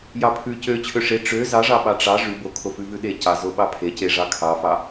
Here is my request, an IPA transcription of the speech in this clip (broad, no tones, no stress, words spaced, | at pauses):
jɑpʰʉ cø t͡ɕʰøʂe ʈ͡ʂø zɑʐɑɓɑ ʈ͡ʂɑ ʐʉ bokʰofʉvʉ ɗecɑzo ɓɑpʰeceʐɑ kʰɑfɑ